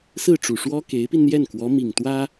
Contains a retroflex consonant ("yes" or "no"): yes